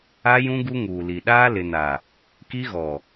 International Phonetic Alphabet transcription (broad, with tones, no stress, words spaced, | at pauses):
a˦jũ˦ ɡu˦ŋuː˨li˨ ɗaː˦lɪ˨na˨ | ki˦ɣɔ˨